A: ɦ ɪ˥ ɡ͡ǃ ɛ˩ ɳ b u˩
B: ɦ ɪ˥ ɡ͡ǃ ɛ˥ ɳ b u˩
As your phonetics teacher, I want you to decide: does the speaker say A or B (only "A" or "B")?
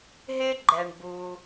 A